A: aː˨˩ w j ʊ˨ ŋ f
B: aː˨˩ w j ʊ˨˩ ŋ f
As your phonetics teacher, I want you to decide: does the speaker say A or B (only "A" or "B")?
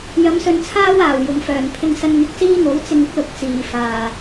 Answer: B